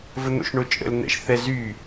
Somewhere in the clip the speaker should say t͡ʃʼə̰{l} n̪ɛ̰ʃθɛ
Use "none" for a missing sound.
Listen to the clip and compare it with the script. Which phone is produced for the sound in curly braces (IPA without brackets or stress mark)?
l